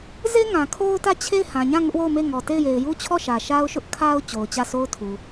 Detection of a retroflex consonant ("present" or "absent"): absent